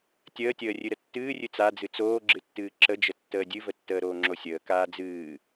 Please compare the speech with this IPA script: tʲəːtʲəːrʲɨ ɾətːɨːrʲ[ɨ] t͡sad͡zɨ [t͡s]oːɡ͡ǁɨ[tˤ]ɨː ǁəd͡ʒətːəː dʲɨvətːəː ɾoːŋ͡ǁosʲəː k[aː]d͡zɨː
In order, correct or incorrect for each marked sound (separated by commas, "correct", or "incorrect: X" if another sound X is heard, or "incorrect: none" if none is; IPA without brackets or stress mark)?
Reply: correct, correct, incorrect: tː, correct